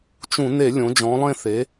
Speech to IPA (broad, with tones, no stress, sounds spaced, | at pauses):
t͡ʃ ũ˧˩˧ n e˧˩˧ lʲ õ˩˧ d͡ʒ ɔ̃˩˧ lˠ ẽ˥˧ θ e˩˥